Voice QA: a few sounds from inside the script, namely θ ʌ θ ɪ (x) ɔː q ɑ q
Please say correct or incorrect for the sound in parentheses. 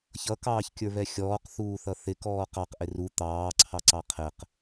incorrect